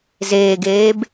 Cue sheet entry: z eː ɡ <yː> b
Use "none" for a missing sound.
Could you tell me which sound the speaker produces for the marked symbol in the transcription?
eː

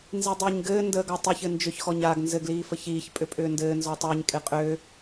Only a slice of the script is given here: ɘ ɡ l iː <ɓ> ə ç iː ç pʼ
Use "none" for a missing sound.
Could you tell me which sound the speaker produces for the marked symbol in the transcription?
f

